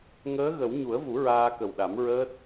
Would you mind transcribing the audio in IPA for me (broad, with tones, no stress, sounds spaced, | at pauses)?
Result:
ŋ əː˧˥ ɣ ə˨˩˦ w ɲ u˨˩˦ ə̯ v u˨˩˦ ɹ aː˧ k ə˨˩ w ɗ a˨˩˦ m ɹ əː˦˥ t̚